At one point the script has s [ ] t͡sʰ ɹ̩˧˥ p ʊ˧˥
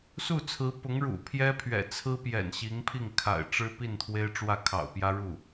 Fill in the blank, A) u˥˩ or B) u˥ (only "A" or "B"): A